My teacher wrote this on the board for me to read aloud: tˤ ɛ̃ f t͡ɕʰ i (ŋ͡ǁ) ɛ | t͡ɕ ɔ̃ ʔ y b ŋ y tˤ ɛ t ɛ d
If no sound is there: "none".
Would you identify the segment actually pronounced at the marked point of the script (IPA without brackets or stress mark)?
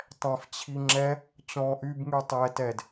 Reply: ŋ͡ǁ